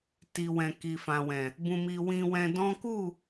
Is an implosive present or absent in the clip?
absent